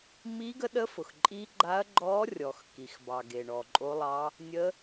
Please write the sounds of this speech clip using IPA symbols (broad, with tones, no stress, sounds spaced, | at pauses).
m i˧˥ ɡ ə˧˥ ɗ ə˧˥ f ʊ˩ x ǃʼ i˧˥ ɡ͡ǃ a˧˥ ɐ̯ ɡ͡ǃ ɔ˧˥ rʲ ɔ˩ x k i˩ x b ɑ˩ ɡ e˩ ɳ ɔ˩ ǃʼ o˧˥ lˠ ɑ˧˥ | nʲ ə˧˥